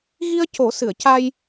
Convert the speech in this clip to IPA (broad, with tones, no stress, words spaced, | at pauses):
ɣi˧ə̯co˨˩˦ sɨ˨˩˨ə̯ca˧j